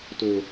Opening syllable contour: low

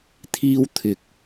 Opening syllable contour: high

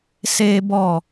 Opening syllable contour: high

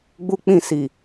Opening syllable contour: high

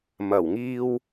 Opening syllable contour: low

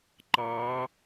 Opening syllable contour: rising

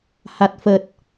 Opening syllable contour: low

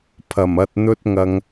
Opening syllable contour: low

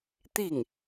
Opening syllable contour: falling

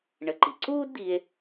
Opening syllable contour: rising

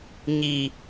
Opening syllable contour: high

